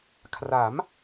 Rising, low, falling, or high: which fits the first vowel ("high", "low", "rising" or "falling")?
rising